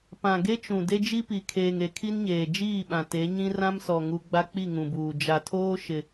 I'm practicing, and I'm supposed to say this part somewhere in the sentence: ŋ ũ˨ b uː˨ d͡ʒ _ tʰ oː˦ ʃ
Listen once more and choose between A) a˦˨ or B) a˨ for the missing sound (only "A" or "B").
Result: B